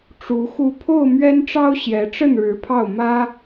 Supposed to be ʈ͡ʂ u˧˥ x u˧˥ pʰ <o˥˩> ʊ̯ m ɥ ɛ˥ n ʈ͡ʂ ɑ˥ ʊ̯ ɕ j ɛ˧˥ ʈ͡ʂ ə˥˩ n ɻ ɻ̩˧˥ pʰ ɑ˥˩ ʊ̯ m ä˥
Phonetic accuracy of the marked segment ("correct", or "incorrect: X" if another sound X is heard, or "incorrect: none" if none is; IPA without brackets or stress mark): correct